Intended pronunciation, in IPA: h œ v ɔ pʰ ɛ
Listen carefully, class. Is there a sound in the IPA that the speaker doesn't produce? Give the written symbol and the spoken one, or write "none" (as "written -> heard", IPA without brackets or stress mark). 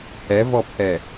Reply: œ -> ɛ